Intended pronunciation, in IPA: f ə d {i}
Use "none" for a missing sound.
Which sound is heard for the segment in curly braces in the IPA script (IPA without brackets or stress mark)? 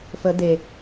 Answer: e